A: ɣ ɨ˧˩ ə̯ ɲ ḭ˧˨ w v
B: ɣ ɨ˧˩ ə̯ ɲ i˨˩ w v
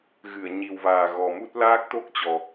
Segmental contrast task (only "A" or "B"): B